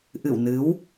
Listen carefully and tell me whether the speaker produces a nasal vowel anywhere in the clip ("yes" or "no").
no